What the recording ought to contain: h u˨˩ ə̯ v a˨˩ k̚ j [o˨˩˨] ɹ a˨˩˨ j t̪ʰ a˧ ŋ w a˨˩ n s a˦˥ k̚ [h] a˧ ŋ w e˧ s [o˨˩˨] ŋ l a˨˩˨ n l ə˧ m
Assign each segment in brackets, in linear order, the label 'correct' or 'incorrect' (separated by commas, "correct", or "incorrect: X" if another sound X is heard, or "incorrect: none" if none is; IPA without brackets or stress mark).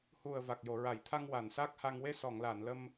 correct, correct, incorrect: ɔ˨˩˨